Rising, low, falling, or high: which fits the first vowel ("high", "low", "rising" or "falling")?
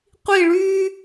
falling